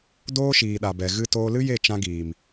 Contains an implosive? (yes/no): yes